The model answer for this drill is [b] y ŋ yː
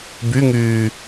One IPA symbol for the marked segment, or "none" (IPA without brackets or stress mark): b